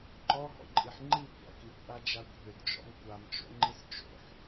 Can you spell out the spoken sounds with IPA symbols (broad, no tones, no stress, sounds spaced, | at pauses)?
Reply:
ǃ ɔ ɦ ɔ̰ ǃʼ i ħ ŋ͡ǃ i kʷ a̰ k i kʷ ʔ a d͡ʒ a kʷ ɦ ʏ d d͡ʒ ɔ̰ m kʷ a m t͡ʃ o̰ ŋ͡ǃ i s t͡ʃ o̰ ħ